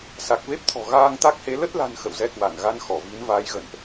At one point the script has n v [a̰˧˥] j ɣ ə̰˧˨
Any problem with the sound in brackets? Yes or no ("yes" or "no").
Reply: yes